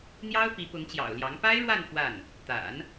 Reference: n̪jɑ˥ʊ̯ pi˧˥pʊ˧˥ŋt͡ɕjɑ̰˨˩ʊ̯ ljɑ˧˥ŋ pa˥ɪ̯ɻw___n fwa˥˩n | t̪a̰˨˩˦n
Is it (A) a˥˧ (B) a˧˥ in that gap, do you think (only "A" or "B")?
A